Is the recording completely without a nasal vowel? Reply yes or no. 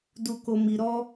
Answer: yes